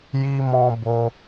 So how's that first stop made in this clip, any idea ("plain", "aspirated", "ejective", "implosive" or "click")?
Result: plain